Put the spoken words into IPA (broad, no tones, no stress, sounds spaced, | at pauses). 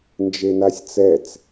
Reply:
n d͡ʒ e n a sʲ t͡s ɛ t͡s